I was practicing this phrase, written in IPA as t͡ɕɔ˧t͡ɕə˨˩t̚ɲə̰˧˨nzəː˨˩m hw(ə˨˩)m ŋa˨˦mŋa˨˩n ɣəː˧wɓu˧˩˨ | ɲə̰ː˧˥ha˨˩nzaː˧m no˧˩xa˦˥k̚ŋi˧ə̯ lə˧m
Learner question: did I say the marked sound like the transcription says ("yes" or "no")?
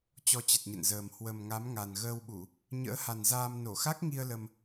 yes